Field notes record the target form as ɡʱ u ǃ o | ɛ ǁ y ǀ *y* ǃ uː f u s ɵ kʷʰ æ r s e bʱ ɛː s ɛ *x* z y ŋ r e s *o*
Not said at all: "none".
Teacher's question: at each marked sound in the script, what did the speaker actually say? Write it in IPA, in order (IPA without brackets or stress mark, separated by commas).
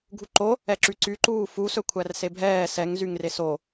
y, ŋ, o